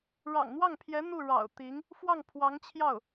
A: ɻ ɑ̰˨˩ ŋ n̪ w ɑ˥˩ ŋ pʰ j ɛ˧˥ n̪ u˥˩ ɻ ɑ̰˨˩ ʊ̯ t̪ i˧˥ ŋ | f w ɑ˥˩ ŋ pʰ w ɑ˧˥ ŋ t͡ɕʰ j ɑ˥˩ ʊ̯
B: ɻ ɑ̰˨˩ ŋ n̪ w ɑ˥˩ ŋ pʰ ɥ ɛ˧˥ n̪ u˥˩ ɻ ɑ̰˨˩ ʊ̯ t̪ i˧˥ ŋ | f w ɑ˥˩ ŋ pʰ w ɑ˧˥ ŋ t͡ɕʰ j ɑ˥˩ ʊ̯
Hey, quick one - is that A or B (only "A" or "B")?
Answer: A